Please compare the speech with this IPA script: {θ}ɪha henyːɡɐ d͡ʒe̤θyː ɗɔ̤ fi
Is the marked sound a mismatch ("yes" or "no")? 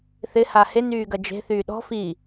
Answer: no